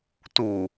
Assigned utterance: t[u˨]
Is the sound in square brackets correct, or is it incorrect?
correct